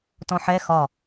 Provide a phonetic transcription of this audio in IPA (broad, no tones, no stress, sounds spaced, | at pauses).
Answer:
t ɔ̃ ħ ɛ x ɒ